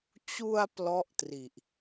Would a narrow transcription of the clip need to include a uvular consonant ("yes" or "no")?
no